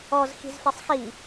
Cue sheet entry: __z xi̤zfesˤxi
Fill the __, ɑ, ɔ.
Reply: ɔ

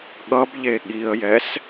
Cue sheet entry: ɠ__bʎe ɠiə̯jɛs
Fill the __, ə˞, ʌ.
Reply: ʌ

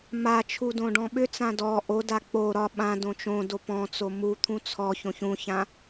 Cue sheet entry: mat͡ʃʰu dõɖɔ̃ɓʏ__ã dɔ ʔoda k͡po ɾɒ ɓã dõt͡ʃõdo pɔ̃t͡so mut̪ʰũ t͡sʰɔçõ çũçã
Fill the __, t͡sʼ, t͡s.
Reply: t͡s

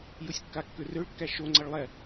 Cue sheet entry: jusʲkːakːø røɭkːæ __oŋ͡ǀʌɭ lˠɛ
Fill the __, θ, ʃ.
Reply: ʃ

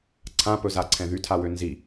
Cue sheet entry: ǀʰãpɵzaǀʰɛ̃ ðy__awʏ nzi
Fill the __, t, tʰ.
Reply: tʰ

